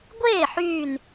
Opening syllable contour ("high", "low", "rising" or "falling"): falling